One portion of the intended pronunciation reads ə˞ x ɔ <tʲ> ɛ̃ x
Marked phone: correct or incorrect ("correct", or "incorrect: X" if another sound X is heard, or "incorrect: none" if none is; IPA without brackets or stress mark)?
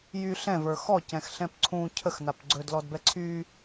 incorrect: c